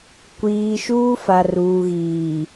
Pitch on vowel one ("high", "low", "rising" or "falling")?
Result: low